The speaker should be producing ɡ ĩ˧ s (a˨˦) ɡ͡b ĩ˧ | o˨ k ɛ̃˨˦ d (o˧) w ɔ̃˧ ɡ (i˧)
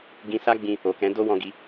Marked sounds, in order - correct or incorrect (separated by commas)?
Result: incorrect, incorrect, correct